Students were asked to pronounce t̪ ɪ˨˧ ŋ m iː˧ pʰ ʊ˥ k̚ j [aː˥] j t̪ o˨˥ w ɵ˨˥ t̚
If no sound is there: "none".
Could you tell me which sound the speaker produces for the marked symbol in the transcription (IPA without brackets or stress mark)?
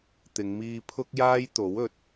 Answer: aː˥